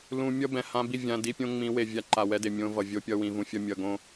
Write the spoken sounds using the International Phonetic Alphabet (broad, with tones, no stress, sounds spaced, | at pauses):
l ũ˨ mʲ ʌ˦ b ɛ̃˨ h ã˦ b i˦˨ vʲ ã˨ d i˦ pʲ õ˦ ŋ͡m ĩ˨˦ w e˨ vʲ a˦ ǃ a˨ w ɛ˦ d e˨ mʲ õ˦ v ʌ˨ vʲ o˦ pʲ ʌ˦ w ĩ˨ v ũ˨ fʲ ʌ˦ mʲ ʌ˨ ɡ õ˦